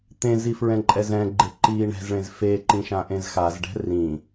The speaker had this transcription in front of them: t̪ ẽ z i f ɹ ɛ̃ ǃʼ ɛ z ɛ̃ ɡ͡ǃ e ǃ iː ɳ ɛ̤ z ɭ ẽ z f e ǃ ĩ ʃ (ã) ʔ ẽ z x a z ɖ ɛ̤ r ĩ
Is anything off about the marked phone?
no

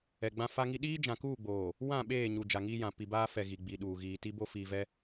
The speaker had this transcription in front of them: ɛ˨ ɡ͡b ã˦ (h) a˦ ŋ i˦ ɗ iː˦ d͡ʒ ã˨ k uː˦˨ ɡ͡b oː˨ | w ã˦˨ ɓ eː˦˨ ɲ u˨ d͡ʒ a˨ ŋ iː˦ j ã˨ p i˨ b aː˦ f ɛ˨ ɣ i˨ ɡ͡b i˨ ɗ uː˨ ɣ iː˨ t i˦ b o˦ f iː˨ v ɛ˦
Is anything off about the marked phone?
yes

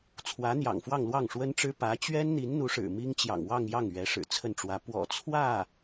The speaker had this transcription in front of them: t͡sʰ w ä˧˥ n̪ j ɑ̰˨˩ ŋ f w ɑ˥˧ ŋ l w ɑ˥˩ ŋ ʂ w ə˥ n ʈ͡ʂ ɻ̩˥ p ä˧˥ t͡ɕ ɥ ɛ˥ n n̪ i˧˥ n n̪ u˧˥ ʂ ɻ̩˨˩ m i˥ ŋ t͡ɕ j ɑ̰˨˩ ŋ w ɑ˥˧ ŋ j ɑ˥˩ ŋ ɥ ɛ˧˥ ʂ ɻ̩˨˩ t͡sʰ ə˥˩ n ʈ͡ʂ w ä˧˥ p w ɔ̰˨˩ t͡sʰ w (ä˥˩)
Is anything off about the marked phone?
no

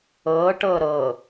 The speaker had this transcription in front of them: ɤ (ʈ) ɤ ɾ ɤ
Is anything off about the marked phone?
no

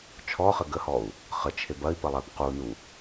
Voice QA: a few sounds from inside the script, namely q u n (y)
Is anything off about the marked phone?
yes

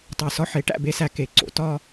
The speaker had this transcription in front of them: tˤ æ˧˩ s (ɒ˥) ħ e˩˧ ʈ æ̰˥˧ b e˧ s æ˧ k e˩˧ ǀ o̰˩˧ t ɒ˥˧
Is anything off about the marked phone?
no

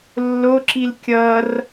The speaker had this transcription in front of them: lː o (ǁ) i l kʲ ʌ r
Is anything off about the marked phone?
no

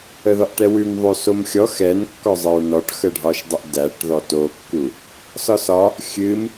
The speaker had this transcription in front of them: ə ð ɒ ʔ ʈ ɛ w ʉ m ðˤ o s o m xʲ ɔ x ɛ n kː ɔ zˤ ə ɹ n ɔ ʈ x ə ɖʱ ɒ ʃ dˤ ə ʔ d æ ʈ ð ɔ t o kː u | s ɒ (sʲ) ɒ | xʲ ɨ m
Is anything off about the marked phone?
yes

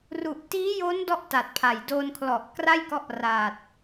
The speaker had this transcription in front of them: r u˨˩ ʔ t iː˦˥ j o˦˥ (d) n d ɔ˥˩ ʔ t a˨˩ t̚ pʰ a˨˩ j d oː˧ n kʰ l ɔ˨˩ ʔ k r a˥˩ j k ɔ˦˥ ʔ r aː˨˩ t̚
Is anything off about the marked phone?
yes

